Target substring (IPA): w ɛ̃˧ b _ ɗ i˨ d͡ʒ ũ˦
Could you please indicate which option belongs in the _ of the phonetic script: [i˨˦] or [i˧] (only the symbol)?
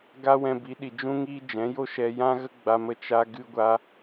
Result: i˨˦